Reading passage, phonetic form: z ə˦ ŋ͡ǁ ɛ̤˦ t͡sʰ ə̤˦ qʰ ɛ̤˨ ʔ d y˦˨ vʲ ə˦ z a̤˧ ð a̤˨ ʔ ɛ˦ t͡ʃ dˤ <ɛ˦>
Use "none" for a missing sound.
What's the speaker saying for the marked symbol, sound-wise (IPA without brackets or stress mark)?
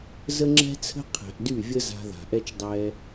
ɛ˦